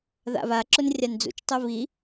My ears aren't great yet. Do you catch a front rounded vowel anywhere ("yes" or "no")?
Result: no